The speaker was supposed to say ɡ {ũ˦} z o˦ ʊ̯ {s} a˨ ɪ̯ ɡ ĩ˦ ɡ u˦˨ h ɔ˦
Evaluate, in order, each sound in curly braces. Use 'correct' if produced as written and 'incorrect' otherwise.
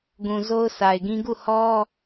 incorrect: ũ˨, correct

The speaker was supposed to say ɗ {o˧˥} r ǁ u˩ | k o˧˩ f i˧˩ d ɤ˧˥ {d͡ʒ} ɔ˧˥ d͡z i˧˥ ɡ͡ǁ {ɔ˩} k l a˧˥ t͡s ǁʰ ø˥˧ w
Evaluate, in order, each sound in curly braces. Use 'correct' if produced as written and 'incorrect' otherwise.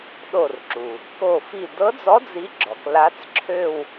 incorrect: o˧˩, incorrect: d͡z, correct

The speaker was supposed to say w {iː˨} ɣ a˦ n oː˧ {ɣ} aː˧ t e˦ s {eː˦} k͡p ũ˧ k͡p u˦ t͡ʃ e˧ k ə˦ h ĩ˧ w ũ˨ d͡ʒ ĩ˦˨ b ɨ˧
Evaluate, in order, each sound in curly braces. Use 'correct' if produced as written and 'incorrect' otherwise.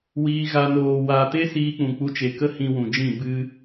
incorrect: iː˦, incorrect: w, incorrect: iː˦

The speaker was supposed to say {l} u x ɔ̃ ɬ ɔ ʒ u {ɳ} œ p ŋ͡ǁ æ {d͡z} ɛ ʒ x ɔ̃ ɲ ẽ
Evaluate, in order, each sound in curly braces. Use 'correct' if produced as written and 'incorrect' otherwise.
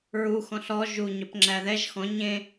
incorrect: ɹ, incorrect: ɲ, incorrect: ð

